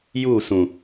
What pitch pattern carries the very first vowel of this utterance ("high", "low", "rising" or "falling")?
falling